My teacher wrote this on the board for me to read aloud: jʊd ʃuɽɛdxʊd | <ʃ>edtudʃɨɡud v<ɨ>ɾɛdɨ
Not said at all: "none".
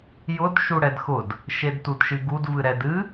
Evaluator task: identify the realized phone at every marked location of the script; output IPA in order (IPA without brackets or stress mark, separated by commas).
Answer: ʃ, ɨ